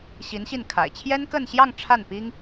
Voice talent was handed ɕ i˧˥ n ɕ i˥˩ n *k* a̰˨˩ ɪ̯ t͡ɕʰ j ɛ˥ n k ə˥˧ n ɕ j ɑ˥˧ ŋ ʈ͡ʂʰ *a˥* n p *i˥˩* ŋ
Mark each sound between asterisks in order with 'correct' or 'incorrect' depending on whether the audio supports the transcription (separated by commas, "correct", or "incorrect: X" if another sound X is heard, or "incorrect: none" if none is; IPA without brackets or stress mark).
incorrect: kʰ, incorrect: a˥˩, incorrect: i˥